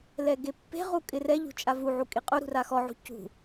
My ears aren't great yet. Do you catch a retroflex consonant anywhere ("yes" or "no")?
no